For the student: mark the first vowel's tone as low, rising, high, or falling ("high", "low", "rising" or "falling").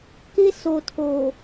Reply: high